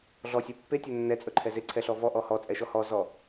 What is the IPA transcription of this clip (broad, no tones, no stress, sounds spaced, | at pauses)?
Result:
ɮ ɔ sʲ ɛ pː e tʲ ɵ nː ɛ t͡sʼ ɵ ǃʰ ɛ z e ǀʰ ɛ ɬ ɔ v ɔ ʔ ɔ h ɔ t͡sʼ ɛ ʃ ɔ h ɔ z ɔ